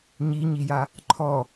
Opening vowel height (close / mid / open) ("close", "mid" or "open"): close